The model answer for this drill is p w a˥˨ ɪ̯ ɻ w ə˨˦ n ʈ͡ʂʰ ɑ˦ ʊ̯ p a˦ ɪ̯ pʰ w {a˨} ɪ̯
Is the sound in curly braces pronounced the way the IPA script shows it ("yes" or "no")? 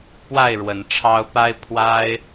no